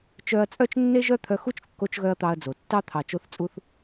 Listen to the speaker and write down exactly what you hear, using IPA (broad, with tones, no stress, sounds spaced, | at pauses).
t͡ʃ œ˧ ɐ̯ t͡sʼ œ˦ t͡ʃ nː e˦ ʒ œ˦ t̪ʰ œ˧ x u˦ t͡ʃ kː o˦ t͡ʃ ɣ œ˦ ɐ̯ t̪ ɑ˧ ɐ̯ d͡z o˨ tː ɑ˦ t̪ʰ ɑ˨ t͡ʃ o˧ θ t͡sʼ u˧ θ